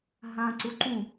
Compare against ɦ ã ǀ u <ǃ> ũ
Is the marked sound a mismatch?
no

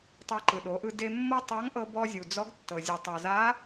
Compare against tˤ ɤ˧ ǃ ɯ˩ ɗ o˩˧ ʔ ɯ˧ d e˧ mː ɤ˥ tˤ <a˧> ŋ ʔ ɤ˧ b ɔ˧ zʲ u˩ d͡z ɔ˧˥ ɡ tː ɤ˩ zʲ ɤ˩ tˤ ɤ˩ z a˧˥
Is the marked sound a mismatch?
yes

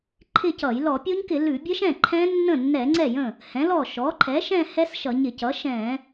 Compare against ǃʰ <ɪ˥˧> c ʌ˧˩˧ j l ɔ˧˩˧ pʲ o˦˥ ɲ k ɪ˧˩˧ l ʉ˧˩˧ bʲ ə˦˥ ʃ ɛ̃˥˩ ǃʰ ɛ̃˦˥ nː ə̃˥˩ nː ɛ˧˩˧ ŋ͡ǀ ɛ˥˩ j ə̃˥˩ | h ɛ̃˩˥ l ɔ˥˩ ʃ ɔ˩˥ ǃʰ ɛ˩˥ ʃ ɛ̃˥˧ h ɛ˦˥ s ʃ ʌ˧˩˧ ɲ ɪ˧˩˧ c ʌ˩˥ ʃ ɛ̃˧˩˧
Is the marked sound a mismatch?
no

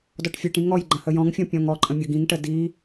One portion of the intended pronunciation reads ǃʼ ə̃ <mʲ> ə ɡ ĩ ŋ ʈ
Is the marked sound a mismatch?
no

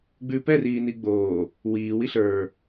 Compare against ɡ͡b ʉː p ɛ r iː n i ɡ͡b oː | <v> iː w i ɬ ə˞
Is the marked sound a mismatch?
yes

